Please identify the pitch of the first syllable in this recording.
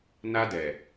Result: high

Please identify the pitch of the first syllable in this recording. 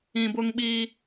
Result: low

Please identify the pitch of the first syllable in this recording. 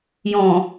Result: low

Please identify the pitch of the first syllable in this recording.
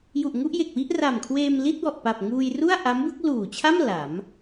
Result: low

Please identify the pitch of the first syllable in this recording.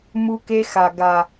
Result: high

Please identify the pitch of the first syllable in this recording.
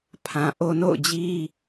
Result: low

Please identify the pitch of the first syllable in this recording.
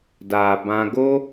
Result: low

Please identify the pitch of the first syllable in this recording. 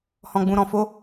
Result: low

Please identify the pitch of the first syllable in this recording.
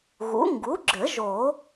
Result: rising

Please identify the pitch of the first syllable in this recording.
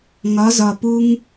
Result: rising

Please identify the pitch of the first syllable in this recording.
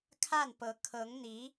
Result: falling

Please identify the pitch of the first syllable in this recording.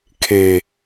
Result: low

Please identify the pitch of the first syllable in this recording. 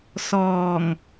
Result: low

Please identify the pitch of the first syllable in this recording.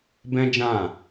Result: high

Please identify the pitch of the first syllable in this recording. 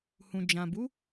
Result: low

